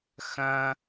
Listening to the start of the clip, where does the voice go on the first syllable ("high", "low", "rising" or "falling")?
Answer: high